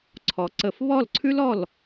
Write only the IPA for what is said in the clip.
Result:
ǀʰ ɔ˩˧ ǀ ə˧˩˧ f β ɔ˥˩ l ǀʰ ʉ˥ l ɔ˥˩ l

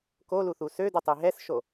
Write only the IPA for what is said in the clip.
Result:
k o l u θ u s ø d u tˤ i ɦ ɛ s ʃ o

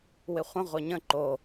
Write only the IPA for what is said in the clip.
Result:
w ɪ χʷ ə̃ ʁʷ e ɲ ə̃ ǃ o

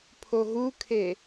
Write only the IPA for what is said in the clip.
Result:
pʰ o ɦ u kʰ e

